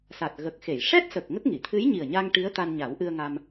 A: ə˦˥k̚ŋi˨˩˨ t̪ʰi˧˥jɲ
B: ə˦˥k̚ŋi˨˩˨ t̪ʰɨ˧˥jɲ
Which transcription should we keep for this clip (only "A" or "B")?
B